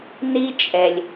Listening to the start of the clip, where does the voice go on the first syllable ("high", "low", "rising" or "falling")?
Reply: high